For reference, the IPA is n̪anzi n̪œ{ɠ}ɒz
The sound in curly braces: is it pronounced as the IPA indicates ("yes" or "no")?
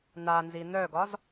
no